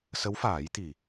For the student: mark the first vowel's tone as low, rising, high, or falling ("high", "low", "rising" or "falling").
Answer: rising